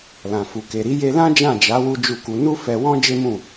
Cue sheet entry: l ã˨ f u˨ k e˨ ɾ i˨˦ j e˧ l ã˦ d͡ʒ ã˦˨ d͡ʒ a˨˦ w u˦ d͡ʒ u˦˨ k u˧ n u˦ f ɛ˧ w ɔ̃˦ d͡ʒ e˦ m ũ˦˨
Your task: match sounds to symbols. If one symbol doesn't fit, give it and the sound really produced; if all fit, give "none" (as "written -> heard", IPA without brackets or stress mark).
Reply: none